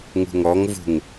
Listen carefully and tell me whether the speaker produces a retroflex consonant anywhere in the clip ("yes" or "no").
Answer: no